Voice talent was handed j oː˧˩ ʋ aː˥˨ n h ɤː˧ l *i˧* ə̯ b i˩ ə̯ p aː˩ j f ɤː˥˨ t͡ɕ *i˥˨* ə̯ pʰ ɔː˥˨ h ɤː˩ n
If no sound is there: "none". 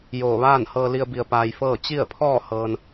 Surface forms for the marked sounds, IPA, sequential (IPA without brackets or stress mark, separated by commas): i˧, i˥˨